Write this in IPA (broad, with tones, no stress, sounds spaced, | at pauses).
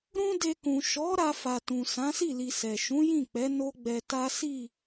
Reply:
ɾ ũ˦ d e˧ k ũ˨ ʃ ɔ˨˦ ɾ a˧ f a˨ t ũ˨ s ã˨˦ s i˦˨ l i˨ s ɛ˨ ʃ ũ˨˦ j ĩ˦˨ k͡p ɛ˨˦ n o˦ ɡ͡b ɛ˧ t a˦ s i˦˨